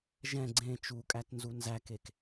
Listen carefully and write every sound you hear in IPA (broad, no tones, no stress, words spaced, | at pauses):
ʒɛ̃ ɡ͡ǀẽ t͡ʃukʼætnzu nzækek